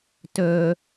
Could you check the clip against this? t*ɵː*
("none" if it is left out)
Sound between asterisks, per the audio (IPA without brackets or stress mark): ɵː